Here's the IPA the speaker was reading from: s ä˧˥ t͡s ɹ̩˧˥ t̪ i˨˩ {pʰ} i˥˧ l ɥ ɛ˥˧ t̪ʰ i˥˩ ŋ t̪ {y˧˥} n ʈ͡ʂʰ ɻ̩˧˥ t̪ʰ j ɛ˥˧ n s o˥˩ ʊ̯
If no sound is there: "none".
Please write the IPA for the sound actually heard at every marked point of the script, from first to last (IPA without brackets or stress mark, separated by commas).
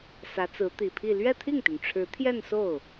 pʰ, y˩